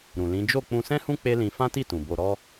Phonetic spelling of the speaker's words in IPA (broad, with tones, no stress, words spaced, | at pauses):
ɾũ˨lĩ˨˦ d͡ʒo˦˨ k͡pũ˧sɛ̃˦hũ˦ k͡pe˦lĩ˧ fã˦ti˦˨tũ˨ bo˨ɾɔ˧